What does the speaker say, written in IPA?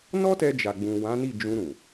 n ɔ˦ t ɛ˧ d͡ʒ a˨ ɡ͡b ũ˨ w ã˨˦ n i˦˨ d͡ʒ ũ˧ ɾ ũ˨

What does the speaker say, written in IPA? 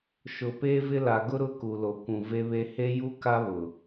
ʃ ʊ˨ p eː˦ v ɪ˦ l a˨ ɡ ʊ˦ ɾ ʊ˦ k u˨ l o˨ kʷ ũ˨ v e˦ β e˦ h e˦ j u˦ k a˦ β ʊ˨

